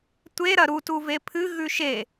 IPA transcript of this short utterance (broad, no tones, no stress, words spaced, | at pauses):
tʷeɾɐ ɾutuve pʰɨɣʉ ʃe